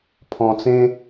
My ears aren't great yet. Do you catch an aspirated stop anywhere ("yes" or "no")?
yes